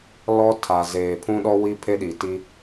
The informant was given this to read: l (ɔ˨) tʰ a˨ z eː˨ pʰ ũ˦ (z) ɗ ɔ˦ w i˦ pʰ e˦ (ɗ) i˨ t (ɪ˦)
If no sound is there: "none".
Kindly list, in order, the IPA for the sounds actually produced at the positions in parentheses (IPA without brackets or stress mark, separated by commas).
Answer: ɔ˦, none, ɗ, i˦